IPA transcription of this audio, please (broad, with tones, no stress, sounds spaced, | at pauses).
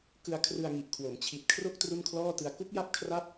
k ɯ˧ a̯ kʰ r ɯ˧ a̯ ŋ i˨˩ ʔ kʰ w o˩˦ m t͡ɕʰ i˨˩ t̚ kʰ r o˥˩ k̚ t r u˥˩ n kʰ l ɔː˥˩ t ɯ˧ a̯ k u˦˥ k̚ j a˥˩ p̚ kʰ r a˦˥ p̚